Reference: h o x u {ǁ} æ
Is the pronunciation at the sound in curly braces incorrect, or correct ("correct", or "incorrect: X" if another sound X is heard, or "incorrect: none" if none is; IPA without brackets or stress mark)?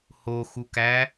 incorrect: k